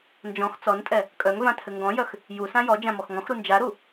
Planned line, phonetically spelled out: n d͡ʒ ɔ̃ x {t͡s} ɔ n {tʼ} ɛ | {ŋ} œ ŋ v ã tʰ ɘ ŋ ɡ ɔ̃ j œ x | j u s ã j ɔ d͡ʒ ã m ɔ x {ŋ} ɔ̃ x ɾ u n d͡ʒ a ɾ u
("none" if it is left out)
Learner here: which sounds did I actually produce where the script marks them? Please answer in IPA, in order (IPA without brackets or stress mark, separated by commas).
t͡s, tʼ, kʼ, ŋ